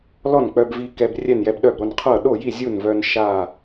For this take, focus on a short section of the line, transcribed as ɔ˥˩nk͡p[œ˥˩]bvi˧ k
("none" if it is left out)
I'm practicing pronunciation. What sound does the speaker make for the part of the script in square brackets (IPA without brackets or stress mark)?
œ˧